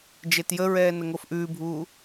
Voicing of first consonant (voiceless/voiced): voiced